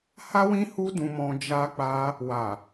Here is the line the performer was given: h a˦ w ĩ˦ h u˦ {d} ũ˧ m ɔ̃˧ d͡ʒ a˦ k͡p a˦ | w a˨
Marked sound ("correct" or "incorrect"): correct